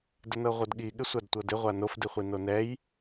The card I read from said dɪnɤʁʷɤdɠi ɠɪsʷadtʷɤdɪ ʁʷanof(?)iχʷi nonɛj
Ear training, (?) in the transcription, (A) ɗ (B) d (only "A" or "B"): B